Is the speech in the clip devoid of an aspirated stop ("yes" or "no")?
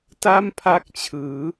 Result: no